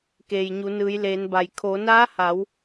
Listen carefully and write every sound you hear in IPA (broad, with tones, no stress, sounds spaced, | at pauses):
k eː˩ j ɲ u˩˧ n ɯː˩˧ j l eː˩˧ n b a˩ j kʰ oː˩˧ n aː˧˥ h a˩˧ w